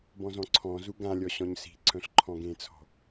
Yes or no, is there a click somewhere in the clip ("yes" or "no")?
yes